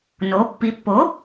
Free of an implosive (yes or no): yes